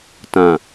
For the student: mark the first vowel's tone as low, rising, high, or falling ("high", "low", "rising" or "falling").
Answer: low